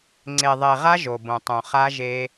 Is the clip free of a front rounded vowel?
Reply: yes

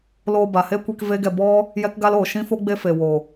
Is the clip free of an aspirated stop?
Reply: yes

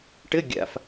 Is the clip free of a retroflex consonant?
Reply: no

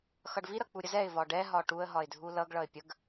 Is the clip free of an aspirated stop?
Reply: yes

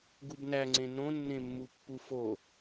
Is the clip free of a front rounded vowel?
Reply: yes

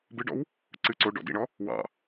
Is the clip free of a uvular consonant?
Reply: yes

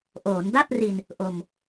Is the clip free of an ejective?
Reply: yes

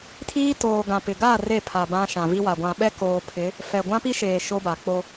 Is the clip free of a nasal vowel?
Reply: no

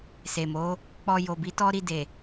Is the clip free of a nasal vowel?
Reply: yes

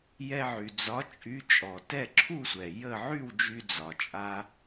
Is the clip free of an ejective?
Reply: no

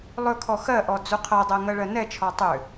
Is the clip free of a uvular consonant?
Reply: no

